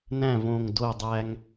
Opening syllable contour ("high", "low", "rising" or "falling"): falling